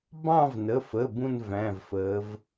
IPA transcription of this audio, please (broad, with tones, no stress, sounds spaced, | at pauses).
b ɑ̃˥˧ v n ə˩˧˩ f əː˩˧˩ b ũ˥˧ n v æ̃˩˧˩ v f əː˩˧ v